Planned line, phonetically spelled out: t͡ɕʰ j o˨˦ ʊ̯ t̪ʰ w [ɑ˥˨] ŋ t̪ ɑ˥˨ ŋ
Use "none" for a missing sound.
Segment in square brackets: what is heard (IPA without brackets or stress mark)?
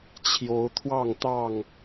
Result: ɑ˥˨